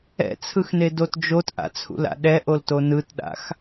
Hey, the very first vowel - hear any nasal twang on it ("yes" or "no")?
no